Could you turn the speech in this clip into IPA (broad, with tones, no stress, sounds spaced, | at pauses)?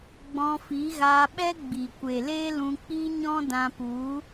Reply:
ɡ͡b ɔ̃˧ f i˨˦ ɣ aː˧ ɓ ɛ˦ ɡ͡b i˨ kʷ e˨ l eː˦ l ũ˧ k͡p i˦ ɲ ɔ̃˦ d ã˧ p u˨˦